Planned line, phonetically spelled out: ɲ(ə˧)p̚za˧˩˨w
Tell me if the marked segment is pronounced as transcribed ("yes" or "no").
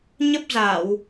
no